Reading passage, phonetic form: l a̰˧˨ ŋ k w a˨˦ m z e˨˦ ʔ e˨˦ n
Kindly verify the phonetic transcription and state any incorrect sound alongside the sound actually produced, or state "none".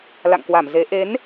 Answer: a˨˦ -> a˧˩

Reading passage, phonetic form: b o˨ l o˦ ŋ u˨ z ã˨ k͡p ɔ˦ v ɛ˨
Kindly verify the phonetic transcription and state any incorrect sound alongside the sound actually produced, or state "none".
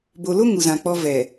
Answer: none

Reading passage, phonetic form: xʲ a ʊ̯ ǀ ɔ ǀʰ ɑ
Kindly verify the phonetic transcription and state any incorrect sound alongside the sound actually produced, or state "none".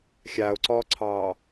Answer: none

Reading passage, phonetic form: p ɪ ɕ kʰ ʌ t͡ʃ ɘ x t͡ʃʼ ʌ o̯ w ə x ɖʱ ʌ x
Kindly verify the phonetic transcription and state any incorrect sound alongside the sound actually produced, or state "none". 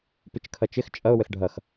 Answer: ɕ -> t͡ʃ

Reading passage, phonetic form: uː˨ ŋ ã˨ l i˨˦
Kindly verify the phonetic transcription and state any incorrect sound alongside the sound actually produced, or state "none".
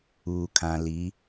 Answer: ŋ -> kʰ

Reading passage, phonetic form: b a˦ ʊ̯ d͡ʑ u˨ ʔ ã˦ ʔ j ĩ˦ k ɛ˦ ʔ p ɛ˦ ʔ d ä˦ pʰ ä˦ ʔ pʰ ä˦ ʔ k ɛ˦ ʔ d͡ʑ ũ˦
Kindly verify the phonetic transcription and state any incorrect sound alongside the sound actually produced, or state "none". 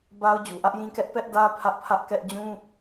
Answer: ã˦ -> ä˦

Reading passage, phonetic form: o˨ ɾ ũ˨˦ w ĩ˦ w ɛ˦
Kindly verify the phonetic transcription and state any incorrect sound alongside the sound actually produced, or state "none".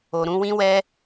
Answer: none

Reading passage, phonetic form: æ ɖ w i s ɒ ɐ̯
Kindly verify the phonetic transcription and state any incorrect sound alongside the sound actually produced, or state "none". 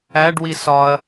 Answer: none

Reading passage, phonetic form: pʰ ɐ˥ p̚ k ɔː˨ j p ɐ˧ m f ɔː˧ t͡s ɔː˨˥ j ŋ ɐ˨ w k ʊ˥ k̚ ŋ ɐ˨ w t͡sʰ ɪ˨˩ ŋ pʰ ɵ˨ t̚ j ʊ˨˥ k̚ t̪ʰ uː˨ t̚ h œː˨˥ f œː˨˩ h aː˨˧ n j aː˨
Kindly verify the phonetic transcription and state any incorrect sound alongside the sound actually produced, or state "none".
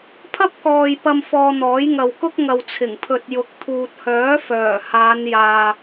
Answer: t͡s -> n̪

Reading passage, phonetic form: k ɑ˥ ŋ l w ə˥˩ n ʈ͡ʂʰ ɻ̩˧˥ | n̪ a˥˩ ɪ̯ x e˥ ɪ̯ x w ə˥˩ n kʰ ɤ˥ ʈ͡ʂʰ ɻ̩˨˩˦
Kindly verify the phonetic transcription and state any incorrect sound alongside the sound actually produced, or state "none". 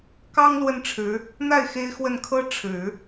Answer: none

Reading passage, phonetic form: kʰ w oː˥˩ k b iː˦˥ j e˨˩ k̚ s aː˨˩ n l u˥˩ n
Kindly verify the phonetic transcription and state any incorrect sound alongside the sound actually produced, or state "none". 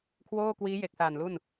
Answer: b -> w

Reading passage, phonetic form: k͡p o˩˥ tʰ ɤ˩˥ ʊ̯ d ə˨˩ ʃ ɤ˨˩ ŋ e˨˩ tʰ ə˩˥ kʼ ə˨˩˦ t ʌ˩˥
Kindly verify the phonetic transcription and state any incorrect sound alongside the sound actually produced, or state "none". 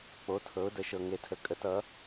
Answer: none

